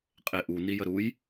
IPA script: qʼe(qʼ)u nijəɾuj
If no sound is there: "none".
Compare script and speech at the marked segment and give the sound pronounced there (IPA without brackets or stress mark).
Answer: ʔ